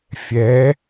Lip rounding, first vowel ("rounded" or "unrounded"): unrounded